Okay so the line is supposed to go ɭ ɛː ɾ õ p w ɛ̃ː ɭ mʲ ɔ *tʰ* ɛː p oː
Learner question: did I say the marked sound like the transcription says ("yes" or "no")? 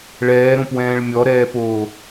no